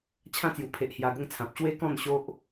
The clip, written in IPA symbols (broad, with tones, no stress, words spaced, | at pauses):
t͡ɕʰã˥˧t͡sju˨˩pʰe˨ʔ hja˧ɡə˥˧ŋt͡sʰã˨p̚ ɕwe˦kɔ̃˥˧n ɕo˦ʔ